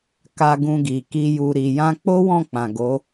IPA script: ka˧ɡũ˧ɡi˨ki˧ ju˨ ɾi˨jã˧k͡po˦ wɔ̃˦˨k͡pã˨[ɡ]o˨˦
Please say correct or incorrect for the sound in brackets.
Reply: correct